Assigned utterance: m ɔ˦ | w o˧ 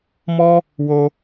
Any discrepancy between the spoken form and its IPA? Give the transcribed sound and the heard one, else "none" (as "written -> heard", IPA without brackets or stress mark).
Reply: none